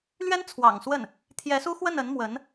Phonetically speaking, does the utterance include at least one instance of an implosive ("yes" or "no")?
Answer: no